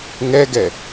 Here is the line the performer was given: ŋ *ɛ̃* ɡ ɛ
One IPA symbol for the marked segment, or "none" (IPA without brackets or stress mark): ɛ